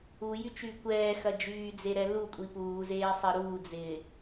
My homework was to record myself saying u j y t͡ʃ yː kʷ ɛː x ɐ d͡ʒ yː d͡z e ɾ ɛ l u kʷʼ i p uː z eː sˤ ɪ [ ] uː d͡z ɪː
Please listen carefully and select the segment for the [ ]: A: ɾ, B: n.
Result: A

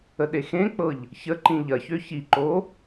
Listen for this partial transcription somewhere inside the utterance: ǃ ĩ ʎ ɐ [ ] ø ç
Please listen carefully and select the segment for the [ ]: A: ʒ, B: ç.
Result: B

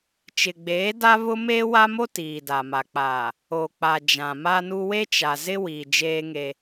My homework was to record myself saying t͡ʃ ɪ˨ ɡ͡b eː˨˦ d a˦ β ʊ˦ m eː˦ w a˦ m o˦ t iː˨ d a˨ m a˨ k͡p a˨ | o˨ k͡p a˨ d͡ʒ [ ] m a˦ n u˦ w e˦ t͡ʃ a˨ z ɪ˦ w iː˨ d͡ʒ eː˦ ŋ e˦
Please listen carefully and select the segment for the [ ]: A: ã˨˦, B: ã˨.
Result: B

